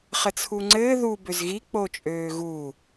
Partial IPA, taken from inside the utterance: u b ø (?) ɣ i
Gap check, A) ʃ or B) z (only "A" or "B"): B